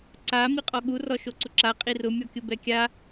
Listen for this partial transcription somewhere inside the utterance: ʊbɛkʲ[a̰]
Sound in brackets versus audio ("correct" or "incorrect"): incorrect